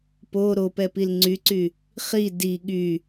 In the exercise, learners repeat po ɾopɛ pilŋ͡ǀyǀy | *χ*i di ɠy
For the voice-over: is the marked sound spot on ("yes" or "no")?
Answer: yes